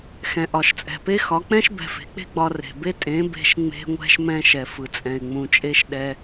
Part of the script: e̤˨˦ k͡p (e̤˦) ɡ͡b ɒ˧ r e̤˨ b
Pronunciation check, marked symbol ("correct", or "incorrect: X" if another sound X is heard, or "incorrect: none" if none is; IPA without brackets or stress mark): correct